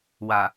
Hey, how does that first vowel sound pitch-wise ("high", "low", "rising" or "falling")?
low